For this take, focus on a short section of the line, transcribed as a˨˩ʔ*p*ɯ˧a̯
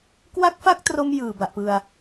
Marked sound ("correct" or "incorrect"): correct